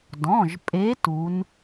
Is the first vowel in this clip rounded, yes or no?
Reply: yes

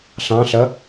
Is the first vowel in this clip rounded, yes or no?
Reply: no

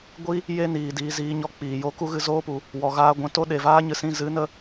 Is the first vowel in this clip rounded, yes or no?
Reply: no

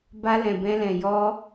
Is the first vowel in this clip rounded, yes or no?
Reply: no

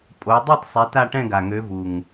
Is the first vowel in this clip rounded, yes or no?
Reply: yes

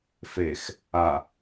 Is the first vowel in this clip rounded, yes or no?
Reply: no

